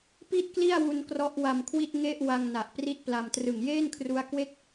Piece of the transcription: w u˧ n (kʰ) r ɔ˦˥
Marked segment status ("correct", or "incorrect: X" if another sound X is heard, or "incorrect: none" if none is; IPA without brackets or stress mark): incorrect: k